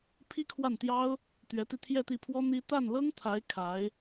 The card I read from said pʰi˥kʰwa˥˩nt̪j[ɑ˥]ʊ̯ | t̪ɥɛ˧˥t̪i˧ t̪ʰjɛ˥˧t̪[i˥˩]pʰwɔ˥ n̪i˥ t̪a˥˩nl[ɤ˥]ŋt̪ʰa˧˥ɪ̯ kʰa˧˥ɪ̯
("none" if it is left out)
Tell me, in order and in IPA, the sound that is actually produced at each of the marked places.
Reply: ɑ˥, i˥˩, ɤ˥

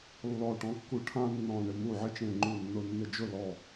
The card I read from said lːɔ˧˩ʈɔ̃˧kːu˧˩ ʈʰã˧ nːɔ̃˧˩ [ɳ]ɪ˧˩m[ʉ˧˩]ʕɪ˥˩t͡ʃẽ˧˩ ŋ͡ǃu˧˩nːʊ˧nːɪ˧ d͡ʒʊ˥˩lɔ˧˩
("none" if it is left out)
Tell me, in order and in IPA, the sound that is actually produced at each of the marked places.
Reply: ɳ, u˧˩

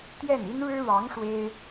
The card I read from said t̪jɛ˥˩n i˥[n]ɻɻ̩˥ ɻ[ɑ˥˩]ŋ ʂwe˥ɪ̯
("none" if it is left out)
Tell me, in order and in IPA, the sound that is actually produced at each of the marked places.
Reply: n, ɑ˧˥

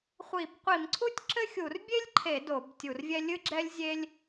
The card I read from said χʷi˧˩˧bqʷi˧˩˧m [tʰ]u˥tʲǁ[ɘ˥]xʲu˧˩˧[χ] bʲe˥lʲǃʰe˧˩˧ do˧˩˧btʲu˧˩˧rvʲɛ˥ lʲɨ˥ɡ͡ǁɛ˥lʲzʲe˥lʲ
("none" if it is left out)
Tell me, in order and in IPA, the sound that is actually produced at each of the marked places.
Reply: ǀʰ, ɘ˥, r

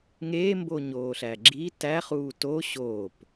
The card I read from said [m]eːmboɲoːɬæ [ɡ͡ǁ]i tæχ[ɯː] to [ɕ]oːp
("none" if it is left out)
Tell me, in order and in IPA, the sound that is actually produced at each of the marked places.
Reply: ŋ, ɡ͡ǁ, uː, ɕ

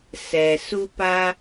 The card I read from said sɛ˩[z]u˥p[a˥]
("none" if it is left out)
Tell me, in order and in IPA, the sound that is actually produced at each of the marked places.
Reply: s, a˥

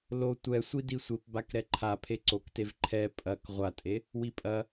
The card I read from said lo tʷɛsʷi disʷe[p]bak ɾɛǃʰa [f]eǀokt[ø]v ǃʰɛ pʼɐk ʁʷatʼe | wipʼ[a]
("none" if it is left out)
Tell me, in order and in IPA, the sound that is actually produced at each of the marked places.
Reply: p, pʰ, e, ɐ

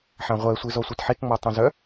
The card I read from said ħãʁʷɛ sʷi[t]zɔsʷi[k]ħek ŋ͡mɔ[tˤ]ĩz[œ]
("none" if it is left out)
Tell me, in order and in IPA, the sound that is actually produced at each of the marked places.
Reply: none, t, tˤ, œ

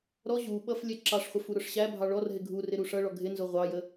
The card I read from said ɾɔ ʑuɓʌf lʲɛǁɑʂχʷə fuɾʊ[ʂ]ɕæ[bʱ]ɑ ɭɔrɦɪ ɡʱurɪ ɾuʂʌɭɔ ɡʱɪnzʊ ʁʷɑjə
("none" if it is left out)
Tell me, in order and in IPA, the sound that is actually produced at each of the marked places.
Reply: ʂ, bʱ

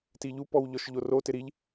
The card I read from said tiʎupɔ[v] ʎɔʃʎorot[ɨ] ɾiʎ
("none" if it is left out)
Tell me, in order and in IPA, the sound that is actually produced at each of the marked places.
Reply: w, ɪ

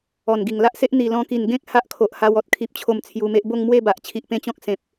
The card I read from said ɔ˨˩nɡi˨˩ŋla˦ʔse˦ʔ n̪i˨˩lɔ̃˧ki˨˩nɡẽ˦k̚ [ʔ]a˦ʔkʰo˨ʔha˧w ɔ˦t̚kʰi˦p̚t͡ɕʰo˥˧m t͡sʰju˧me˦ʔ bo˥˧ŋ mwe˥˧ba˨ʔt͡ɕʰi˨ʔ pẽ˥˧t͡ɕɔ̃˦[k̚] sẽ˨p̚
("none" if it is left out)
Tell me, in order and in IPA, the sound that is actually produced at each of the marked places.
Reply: h, k̚

